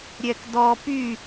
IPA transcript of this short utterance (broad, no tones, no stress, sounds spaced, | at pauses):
ɾʲ ɛ k d ɔ p y